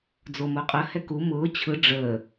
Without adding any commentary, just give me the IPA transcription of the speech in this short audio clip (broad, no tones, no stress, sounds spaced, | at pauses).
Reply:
d͡z o m o qʼ ə h ɛ k u m ʊː t͡ɕʰ ɯ ɖ͡ʐ əː